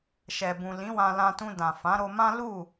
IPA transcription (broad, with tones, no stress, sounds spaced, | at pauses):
ʃ ɛ˨ b ũ˨ l ĩ˨˦ w ã˧ l ã˧ t ũ˧ d ã˨ f ã˨˦ ɾ o˧ m ã˦ l u˦˨